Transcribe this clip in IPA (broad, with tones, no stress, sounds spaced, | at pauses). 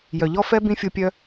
j œ˨ ʎ ɔ˦ f ɛ˦ b ĩ˦ fʲ o˦ pʲ œ˦